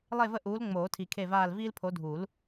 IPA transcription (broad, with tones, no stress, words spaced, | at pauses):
lˠe˦˨və˦˨ʔuː˨˦l ŋ͡moː˨˩˦tʰi˨kʰe˦˨vaː˦˨l viː˦lpʰo˨˦dʱu˨˩˦l